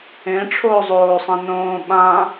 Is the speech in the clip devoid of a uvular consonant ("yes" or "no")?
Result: yes